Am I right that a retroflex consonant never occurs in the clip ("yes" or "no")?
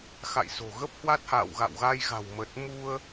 yes